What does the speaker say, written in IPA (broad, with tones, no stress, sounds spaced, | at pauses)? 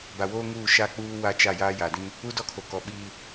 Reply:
b a˨ w oː˦ ŋ uː˦˨ ʃ a˦ k͡p uː˦ w a˦ t͡ʃ a˦˨ j aː˦ j a˨ d ĩ˦ | u˦ d ɔ˦ kʰ o˨ k ɔ˨˦ ɓ iː˦